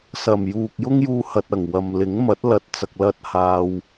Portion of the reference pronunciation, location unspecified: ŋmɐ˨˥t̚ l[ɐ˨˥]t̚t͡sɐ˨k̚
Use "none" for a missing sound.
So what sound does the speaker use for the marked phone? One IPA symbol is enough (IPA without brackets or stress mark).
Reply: ɐ˨